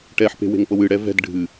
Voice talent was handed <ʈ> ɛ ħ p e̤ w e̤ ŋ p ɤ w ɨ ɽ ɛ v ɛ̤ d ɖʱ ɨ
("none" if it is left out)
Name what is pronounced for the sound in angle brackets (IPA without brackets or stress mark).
ʈ